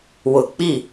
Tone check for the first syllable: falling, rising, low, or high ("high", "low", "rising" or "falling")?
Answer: low